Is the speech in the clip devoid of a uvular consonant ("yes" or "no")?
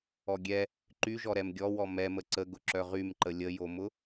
no